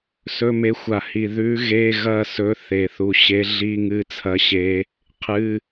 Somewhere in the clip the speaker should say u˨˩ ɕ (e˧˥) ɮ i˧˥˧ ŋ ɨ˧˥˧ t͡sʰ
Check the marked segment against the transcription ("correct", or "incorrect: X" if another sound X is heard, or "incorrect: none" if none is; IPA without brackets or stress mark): correct